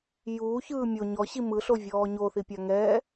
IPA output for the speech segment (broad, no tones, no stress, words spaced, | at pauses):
juːçɯː mʲo ɲɔɕi mɯɬovʲɔː ɲoθipʲa ŋɛː